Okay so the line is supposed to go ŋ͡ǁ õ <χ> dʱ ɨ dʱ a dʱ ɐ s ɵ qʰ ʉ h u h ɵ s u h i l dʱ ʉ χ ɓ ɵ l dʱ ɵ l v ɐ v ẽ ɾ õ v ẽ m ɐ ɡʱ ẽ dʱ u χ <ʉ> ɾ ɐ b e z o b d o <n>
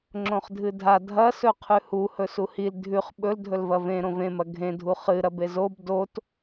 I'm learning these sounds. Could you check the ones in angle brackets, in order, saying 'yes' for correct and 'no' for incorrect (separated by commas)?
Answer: yes, no, no